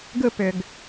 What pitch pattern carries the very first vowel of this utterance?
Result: high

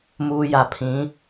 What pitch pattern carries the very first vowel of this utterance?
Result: low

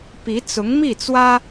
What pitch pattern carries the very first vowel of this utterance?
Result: rising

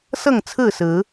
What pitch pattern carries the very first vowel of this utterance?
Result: falling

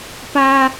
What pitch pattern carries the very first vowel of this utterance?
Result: low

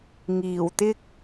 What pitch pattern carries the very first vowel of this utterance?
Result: low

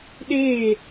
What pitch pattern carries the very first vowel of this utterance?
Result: falling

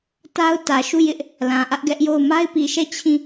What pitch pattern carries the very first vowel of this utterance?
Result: high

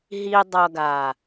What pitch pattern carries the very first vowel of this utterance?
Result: low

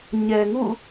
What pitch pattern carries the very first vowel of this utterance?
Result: low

